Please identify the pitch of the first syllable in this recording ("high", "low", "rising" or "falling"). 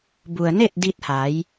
low